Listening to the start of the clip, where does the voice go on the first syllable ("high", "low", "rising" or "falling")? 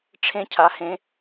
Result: high